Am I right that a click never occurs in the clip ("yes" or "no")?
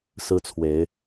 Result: yes